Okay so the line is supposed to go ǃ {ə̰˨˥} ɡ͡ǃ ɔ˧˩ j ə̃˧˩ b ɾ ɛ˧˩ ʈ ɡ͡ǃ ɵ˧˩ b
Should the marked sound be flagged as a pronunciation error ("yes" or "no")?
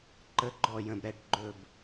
yes